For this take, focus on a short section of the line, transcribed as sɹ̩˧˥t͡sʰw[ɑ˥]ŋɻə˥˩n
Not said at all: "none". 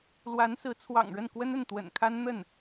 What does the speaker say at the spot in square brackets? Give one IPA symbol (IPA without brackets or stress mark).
ɑ̰˨˩